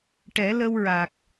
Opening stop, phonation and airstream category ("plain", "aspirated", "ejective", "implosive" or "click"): plain